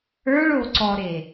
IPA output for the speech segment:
ə˞ ɭ o ǀ ɔ ɾ e

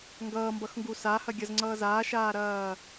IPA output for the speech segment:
ŋ ɡ ʌː m b ʌ x ŋ ɡ u s a h ɐ ɡʲ ʌ z ŋ͡ǀ ʌː z aː ʃ aː ɾ ɐː

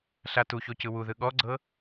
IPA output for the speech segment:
ɬ a t u ç o c ɯ w u ð ɯ ɠ ɔ ɡ͡ǀ ɤ

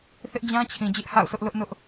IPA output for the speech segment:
θ ɪ˦ ʔ d͡ʑ ã˦ t͡ɕʰ ĩ˨ d͡ʑ ɪ˦ ʔ h a̰˦˨ ʊ̯ sʰ ʊ˦ ʔ l ʊ˦ ʔ n ʊ˦ ʔ

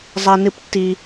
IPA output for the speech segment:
zˤ a˦ n ɨ˦ p tː i˦

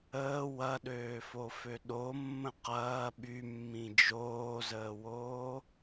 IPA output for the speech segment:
əː w ɐ ɗ øː f o f ø ɗ o mː ə̃ q ɐː ɓ y mː ĩ d͡ʒ oː z əː w oː

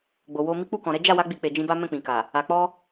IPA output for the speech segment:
ɡ͡b o˨ w o˧ m i˦ k͡p u˦˨ k ɔ̃˨ ɾ ɛ˨˦ d͡ʒ a˦˨ w a˨˦ ɡ͡b i˧ k͡p e˨ d͡ʒ ĩ˧ b a˦ m ɛ̃˦˨ k͡p ĩ˨ k a˨ | a˨ k͡p ɔ˧

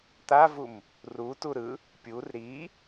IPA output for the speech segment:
t̪ a v u m | r u t u ɾ ɯ | pʲ u r ɾ i

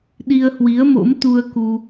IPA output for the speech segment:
ɗ i˧ ə̯ h w i˨˦ ə̯ m o̰˧˥ m t̪ u˧ ə̯ k u˧

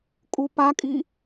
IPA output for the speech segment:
kʼ u p a kʼ i

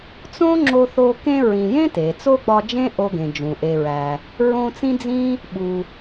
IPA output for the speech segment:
t͡s õ˥ ŋ͡ǁ o˦ θ o˦ k ẽ˦ ɹ ĩ˨ j ẽ˥ t e˩ t͡s o˥ ɡ͡b ɒ˦ d͡ʒ ẽ˥ ʔ o˦ ɡ ẽ˩ d͡ʒ ũ˩ ʔ e˨ ɹ æ˨ | ɹ õ˦ t͡s ĩ˥ d͡z ĩ˥ | ɓ u˨

